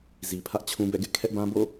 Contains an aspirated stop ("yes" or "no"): yes